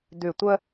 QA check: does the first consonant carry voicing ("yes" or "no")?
yes